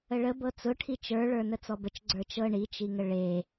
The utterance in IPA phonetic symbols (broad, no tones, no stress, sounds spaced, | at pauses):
ə ɭ ə b ɤ t͡s ʊ ʈʰ i t͡ʃ ə˞ ɭ ə˞ n ə t͡s ɔ b ə t͡ʃ ɡ͡ǀ ə˞ t͡ʃ ɤ ɳ i t͡ʃ i ŋ ə ɭ e